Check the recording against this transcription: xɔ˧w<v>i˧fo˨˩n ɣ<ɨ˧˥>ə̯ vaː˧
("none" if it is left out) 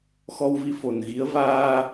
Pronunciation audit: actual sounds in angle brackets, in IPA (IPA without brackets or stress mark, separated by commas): v, i˧˥